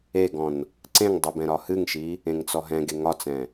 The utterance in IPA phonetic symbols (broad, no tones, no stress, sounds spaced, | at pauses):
e ɡ ɔ̃ n | ǀ ẽ ŋ dˤ ɨ b ɛ̃ ɾ ɒ h ɨ ŋ ʃ i | ẽ ŋ t͡s ɔ ɦ ɛ̃ ɡ e ŋ ɒ t͡s ɛ̃